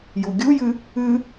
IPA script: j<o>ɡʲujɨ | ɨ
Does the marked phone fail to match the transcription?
yes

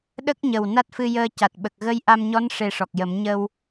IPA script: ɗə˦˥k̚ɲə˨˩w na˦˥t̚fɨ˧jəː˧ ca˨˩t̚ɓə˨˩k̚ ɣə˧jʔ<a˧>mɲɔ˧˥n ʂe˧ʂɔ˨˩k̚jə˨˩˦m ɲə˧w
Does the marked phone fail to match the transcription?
no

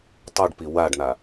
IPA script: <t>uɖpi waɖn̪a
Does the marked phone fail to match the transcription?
yes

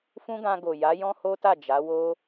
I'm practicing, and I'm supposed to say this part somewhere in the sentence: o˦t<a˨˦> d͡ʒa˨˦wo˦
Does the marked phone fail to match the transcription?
yes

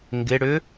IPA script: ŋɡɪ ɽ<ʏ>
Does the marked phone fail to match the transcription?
no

